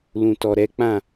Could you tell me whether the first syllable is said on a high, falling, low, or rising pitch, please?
low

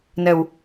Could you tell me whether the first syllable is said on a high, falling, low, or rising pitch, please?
low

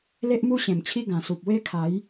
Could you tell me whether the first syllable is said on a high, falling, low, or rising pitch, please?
high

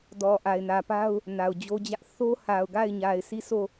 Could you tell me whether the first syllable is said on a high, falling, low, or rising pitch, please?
low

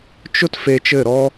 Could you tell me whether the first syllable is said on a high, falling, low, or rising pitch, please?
high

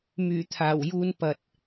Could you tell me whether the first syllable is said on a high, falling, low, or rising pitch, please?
low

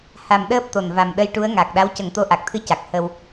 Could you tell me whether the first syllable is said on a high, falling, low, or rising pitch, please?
low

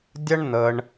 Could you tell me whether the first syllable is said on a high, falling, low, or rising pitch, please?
high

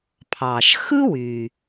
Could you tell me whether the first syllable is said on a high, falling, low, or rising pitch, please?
low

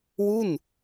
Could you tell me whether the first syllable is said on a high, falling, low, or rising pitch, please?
falling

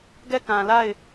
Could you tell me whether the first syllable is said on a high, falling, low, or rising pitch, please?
falling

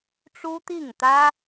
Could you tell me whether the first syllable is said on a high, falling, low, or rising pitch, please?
high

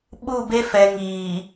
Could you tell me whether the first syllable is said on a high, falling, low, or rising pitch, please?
falling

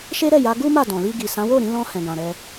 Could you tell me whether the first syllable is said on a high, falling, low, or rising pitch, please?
high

